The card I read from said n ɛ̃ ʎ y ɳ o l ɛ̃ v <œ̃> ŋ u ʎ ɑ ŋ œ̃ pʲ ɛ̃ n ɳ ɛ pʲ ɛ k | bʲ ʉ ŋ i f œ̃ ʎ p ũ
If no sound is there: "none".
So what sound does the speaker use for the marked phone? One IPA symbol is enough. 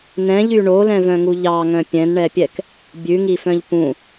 œ̃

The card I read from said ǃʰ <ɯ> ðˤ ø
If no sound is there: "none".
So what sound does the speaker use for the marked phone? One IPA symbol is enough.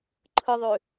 ɯ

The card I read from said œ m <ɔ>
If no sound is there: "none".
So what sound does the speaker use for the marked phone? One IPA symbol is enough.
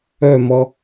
ɔ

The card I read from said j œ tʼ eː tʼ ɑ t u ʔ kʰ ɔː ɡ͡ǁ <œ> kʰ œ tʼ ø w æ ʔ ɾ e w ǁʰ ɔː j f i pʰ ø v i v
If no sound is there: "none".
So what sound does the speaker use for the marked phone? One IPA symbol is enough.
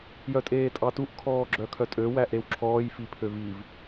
œ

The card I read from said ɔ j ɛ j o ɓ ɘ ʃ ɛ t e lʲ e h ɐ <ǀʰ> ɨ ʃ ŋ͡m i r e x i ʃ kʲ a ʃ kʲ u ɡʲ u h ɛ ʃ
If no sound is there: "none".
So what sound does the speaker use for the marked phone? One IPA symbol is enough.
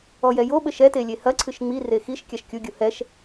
ǀʰ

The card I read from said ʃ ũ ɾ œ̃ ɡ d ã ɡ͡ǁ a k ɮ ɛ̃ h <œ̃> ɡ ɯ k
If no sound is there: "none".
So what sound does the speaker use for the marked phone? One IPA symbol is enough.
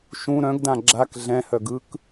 œ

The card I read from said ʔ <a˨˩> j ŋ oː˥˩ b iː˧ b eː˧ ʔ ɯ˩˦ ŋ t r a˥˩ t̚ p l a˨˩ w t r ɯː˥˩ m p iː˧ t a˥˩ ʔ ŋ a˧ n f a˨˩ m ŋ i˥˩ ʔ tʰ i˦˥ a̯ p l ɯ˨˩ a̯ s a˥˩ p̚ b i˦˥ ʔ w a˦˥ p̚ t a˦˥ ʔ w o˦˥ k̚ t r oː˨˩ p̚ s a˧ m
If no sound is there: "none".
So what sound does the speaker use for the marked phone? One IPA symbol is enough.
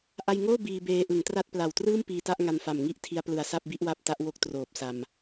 a˧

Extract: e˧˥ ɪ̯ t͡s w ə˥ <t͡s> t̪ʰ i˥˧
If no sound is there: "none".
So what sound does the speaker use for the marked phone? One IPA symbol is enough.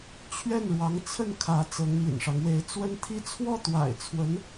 n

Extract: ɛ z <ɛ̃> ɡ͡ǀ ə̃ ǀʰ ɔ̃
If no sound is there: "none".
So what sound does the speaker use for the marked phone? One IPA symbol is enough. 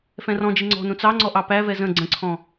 ə̃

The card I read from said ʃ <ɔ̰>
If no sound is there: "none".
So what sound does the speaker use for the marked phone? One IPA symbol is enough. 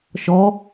ɔ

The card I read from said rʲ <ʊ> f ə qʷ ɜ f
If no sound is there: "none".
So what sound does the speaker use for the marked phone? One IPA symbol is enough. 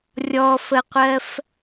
ɔ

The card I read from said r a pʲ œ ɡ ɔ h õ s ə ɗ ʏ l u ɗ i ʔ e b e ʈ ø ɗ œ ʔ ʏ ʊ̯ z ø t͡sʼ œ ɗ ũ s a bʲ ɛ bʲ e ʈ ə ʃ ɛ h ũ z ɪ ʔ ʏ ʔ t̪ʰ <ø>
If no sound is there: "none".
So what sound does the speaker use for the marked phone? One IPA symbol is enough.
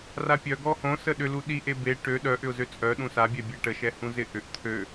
ø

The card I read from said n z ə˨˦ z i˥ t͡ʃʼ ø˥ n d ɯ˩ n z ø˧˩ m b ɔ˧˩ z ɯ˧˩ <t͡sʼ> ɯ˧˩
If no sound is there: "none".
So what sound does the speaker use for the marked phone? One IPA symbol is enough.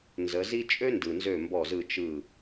t͡ʃ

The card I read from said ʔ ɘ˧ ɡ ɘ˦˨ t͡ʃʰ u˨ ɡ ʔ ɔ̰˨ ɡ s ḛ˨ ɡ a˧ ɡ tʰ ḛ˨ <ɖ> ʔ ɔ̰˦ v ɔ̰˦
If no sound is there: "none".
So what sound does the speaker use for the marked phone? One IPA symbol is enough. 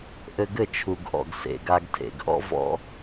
ɡ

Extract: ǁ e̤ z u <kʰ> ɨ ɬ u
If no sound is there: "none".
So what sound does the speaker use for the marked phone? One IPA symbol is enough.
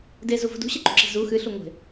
x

